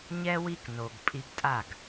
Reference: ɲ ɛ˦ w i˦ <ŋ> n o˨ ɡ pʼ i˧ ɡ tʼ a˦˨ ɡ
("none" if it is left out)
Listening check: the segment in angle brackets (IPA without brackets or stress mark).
k